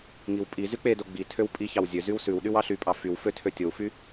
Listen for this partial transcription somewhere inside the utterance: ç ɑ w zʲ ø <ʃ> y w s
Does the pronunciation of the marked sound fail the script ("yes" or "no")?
yes